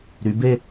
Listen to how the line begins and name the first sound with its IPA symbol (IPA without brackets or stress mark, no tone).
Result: ɾ